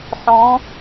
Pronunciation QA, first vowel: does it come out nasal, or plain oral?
nasal